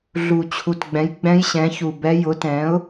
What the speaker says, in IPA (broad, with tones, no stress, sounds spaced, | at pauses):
ɮ u˨˩ t͡ɕʰ u˨˩ t ɡ͡b ɛ̃˩˥ j ɡ͡b ɛ̃˧˥ j ɕ ɛ̃˩˥ ç u˨˩ b ɛ˧˥ j ʊ˩˥ t ɛ̃˩˥ ʊ̯